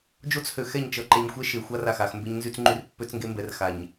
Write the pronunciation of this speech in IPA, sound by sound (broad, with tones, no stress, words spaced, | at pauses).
d͡ʒo˦t͡shø˨xɛ˦˨ɲ t͡ʃʌ˨ǃɛ˨ɲxʷɛ˦ ʃe˨xʷa˦r a˦˨xa˦˨x mbe˦ɲnzy˦t͡sŋ͡ǃy˦r pːø˦t͡sŋɡe˦mbɛ˨r xa˨ɲ